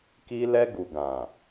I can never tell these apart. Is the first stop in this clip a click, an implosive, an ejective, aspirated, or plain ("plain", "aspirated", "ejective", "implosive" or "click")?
plain